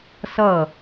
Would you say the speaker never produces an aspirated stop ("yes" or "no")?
yes